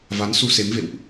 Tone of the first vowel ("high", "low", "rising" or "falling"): rising